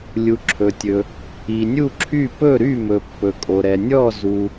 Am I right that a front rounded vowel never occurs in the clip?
no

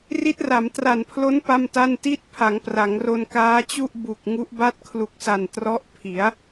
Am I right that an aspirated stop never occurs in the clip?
no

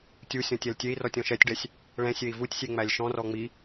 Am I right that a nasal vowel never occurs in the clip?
no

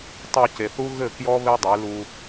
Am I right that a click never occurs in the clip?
yes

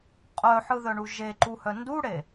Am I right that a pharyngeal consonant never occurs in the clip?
no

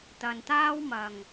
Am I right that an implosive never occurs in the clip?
yes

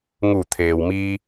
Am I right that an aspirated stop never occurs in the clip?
no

